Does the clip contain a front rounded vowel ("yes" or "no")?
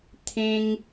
no